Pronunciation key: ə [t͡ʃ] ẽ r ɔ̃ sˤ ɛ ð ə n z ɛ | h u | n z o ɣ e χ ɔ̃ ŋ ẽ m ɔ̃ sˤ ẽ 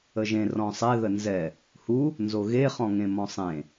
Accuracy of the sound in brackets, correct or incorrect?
incorrect